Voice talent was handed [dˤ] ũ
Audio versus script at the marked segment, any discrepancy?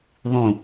yes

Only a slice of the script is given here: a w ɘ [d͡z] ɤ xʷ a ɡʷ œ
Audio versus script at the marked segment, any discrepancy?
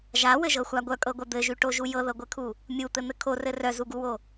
yes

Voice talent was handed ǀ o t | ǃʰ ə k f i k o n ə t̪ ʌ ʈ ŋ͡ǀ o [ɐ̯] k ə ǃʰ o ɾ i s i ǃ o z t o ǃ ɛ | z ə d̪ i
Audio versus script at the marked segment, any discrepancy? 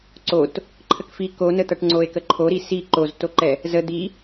yes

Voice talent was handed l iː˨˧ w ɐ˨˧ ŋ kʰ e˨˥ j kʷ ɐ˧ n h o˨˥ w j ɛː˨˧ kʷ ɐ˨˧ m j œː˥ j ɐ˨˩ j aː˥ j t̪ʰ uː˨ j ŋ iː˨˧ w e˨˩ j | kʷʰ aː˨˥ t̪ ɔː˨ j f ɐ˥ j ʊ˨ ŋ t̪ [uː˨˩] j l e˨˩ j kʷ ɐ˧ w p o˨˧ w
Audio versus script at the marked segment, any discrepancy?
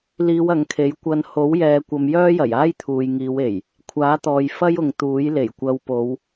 yes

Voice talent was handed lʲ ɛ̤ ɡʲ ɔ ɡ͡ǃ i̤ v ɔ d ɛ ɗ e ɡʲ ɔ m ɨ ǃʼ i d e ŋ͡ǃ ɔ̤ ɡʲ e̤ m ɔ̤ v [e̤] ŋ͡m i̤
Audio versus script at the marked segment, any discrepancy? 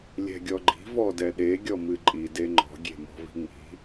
yes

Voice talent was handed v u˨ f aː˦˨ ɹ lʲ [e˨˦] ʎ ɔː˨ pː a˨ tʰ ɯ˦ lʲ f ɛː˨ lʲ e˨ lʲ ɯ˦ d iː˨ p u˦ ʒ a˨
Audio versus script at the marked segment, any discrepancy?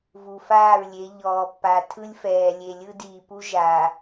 no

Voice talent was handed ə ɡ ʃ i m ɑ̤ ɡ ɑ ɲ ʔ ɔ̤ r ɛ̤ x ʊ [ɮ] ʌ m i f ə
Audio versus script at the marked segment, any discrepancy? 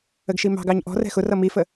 yes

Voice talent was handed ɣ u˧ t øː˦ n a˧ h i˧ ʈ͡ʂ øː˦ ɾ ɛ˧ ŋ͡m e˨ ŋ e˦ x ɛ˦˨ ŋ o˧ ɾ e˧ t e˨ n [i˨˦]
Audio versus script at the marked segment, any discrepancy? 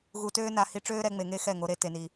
yes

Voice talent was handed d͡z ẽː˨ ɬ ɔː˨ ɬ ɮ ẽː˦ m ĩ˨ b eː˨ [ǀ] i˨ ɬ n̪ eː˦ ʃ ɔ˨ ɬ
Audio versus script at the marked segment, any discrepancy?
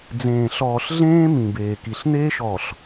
yes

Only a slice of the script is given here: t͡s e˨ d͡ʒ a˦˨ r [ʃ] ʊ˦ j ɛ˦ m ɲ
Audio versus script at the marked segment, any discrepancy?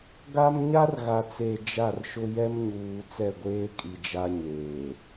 no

